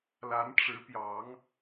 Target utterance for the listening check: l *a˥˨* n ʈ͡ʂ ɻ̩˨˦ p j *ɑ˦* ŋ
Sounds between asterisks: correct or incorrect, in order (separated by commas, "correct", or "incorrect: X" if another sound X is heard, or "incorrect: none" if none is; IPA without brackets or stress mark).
incorrect: a˨˦, incorrect: ɑ˨˦